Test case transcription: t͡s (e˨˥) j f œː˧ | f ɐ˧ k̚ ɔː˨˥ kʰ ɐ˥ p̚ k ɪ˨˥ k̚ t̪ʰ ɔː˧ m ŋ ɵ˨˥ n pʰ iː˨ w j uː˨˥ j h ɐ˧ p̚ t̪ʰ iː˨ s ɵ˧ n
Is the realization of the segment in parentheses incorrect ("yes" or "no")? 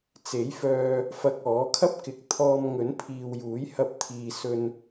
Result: no